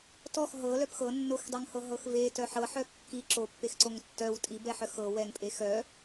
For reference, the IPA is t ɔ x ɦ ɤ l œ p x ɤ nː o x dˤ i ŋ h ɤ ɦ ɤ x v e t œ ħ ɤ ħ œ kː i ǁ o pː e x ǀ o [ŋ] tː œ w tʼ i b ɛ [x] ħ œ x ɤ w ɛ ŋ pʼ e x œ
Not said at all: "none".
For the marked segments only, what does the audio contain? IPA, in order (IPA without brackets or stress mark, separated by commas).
ŋ, none